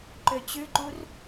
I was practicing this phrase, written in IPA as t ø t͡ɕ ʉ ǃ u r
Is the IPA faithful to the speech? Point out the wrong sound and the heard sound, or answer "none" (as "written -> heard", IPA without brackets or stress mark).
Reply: t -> ǃ